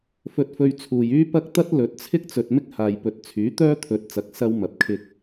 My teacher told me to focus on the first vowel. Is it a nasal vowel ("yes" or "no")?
no